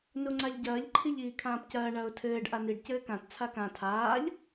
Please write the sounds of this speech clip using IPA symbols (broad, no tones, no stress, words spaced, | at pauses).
nuŋ͡ǀaʎɟɐːʎ ǃʰiʎiːkʰãːpcɐː ɳɐːʊ̯tʰɘːɖ ʔaniɖ cɘːkãt t͡sʰakã tʰaːʎ